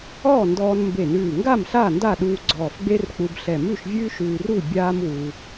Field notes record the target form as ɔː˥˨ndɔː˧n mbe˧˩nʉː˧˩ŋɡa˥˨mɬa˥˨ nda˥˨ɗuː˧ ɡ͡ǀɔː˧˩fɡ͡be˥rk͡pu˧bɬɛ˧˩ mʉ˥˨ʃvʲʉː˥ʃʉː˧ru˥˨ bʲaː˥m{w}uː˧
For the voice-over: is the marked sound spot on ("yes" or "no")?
yes